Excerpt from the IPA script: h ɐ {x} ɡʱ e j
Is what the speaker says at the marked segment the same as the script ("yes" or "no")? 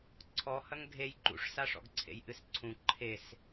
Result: no